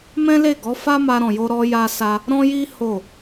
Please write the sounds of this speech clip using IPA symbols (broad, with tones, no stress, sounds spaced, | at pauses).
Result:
m ɛ̃˦ l e˦˨ ɡ ɔ˨˦ f a˦ m a˧ ɾ ɔ̃˨ j o˧ ɾ ɔ˧ j a˧ s a˧ | ɾ ɔ̃˦ j i˦ h o˦˨